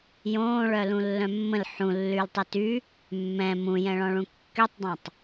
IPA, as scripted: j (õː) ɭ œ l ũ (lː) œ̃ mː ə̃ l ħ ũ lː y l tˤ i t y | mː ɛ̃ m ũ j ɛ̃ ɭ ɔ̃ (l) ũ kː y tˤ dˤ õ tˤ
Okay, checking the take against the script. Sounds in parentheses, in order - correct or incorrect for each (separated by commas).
correct, correct, incorrect